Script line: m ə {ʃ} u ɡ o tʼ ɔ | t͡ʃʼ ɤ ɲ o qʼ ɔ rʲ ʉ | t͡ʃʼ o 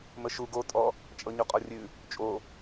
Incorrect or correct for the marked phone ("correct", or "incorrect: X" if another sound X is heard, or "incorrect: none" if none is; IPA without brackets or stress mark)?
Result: correct